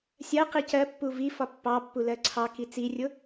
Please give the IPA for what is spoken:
sʲ ɜ q i c ɜ pː u v i f ɒ pː ɑ pː u l ɜ ǀʰ ɑ k i t͡s i rʲ ʊ

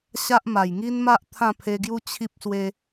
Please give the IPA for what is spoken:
ɕ a˦ ʔ m a˨˩ j ŋ i˦ n m a˦ ʔ t̪ʰ ã˥˧ pʰ e˧ ɡ j u˦ t͡ɕʰ i˦ p̚ s w e˧

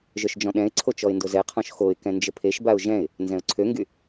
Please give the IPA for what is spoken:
ʒ œ ʃ d͡ʒ ɔ̃ ɗ ɛ̃ ɪ̯ ǀʰ o t͡ʃ ɔ ɪ̯ n d o z ɛ qʰ ɔ̃ ʃ x o ɪ̯ k ɛ̃ n d͡ʒ ə pʰ e ʃ b a ʊ̯ ʒ ɛ̃ ɪ̯ | n z ɛ̃ ʊ̯ ǀʰ ø ŋ ɡ y

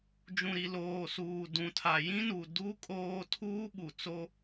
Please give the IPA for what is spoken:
d͡ʒ ũ˨ ɾ i˨ l oː˨ s uː˨ d ũ˨ tʰ a˨ j ĩ˦ n u˨ d u˦ kʼ oː˦ tʰ uː˦ ɓ u˨ t͡s o˦

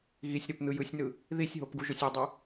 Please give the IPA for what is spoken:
ɣ i sʲ ɾ o p n̪ ɯ j ɯ sʲ n ɯ | ð i sʲ ɦ o p ɡ u ʒ o sʲ o dˤ ɯ

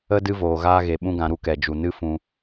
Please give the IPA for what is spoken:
ə˦ d ɨ˦ v oː˨ ɣ aː˦ ɣ e˨ ɓ ũ˦ ɡ ã˧ ɾ u˦ k ɛ˨ d͡ʒ u˨ n ɨ˦ f ũ˦

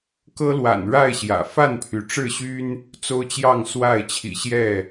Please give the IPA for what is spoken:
k ɤ˦ l w a̰˨˩ n ɻ a˥˨ ɪ̯ ɕ j ä̰˨˩ f a˥˨ n pʰ y˩ ʈ͡ʂ ɻ̩˥˨ ɕ y˦ n | t͡s o˦ ʊ̯ t͡ɕ j ɑ˥˨ ŋ s w a˥˨ ɪ̯ t͡ɕʰ ḭ˨˩ ɕ j ɛ˥˨

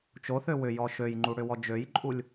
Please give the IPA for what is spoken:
t͡ʃ o θ ø w ʏ j ɔ ʃ ø j ŋ͡ǃ u ɽ ʏ w ɔ d͡ʒ ø j ǃʼ u lʲ

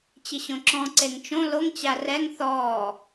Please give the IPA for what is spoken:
t͡ɕ ɪ ɕ õ ǁ ɔ̃ ǀ e ŋ t͡ʃ õ l o ŋ t͡ɕ a r ɛ ŋ θ ɔː

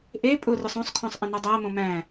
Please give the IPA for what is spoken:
ʔ e pʼ ʊ r ʊ sˤ õ sˤ kʰ õ sˤ ʔ ə̃ n o dˤ æ m õ m æ̃

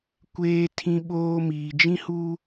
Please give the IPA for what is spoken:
kʷ eː˦ tʰ ĩ˦ ɓ oː˦ m iː˨ d͡ʒ ĩ˦ h uː˦

